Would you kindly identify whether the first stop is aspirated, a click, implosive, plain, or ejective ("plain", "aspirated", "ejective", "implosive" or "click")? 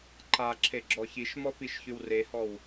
click